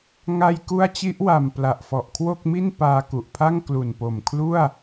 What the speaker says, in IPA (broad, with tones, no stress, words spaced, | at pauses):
ŋa˧jku˦˥a̯t͡ɕi˦˥ʔwa˨˩m pla˨˩ʔfɔ˨˩ʔkʰwo˥˩k̚ mi˥˩npaː˧ku˨˩ʔpʰa˥˩ŋ klu˨˩npo˨˩mkʰlu˥˩a̯